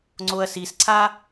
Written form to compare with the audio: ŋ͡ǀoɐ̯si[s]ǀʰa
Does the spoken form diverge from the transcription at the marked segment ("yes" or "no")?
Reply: no